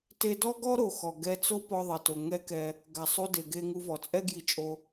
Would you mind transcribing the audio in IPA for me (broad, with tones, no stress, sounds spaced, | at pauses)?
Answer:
t e˧ d ɔ˥ ɡ ɔ˥ ɾ o˩ x ɔ˩ ɡ ɛ˧ t͡s o˥ p ɔ˧ ðˤ e˩ t o˩ ŋ ɛ˥ k ɛ˧ | ɡ a˩ sˤ u˧ d e˩ ɡ e˧ ŋ u˧ v ɔ˩ t͡sʼ ɛ˥ ɡ j i˧ t͡ʃʼ o˧